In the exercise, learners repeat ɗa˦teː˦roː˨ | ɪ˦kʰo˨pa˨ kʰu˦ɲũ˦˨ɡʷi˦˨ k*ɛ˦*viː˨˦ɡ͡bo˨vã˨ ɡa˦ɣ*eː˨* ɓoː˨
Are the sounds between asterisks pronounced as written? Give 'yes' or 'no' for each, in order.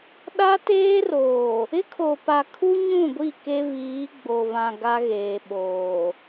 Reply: no, yes

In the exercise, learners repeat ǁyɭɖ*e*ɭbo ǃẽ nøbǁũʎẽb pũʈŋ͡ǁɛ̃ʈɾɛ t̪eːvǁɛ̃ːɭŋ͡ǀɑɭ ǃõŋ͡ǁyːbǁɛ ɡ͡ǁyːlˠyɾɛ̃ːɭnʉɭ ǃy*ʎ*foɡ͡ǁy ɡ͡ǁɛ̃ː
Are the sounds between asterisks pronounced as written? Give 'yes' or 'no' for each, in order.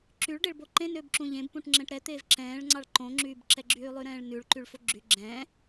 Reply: yes, no

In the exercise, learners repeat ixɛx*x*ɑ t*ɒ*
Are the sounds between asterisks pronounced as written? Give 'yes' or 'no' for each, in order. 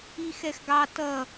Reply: no, no

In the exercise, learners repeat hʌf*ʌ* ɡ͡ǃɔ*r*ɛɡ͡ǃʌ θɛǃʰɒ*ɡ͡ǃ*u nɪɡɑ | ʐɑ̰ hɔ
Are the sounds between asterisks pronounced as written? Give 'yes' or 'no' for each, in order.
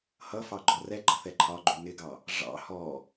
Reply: no, yes, yes

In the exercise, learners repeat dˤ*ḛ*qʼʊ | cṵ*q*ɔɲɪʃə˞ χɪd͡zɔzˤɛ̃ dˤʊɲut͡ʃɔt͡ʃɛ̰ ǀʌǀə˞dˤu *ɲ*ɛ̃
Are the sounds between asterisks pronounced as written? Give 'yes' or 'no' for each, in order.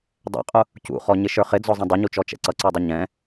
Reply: no, no, yes

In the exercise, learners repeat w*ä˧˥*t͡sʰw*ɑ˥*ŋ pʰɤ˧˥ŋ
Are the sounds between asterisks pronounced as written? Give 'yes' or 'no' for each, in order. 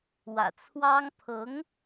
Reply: no, yes

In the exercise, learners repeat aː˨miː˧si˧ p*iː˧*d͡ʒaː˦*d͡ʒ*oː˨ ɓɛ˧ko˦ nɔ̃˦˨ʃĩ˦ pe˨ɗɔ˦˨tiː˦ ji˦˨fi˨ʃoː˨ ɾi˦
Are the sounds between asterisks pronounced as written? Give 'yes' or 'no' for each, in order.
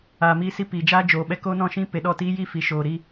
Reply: no, yes

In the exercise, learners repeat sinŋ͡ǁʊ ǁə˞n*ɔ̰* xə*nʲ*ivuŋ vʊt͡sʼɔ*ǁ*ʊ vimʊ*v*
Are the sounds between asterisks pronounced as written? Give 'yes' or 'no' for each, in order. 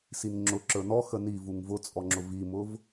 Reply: no, no, no, yes

